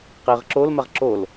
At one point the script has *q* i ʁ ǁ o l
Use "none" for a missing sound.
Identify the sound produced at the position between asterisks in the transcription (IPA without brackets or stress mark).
q